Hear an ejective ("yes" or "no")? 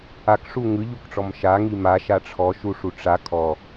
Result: no